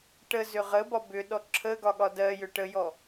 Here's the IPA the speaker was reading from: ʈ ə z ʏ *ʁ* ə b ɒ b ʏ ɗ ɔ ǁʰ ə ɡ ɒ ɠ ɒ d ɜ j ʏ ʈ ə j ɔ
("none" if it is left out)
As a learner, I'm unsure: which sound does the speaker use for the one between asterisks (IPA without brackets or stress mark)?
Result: ʁ